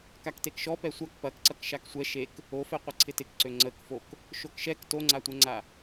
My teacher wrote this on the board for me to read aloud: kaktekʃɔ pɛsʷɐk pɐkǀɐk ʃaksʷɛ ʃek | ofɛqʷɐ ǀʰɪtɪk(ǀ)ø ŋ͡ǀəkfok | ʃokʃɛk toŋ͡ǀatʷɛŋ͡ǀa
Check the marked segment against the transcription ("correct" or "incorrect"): correct